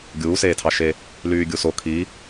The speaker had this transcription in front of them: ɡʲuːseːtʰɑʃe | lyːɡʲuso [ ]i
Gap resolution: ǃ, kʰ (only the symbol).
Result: kʰ